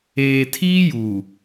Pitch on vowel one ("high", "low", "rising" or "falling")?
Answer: low